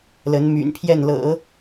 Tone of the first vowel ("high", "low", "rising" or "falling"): rising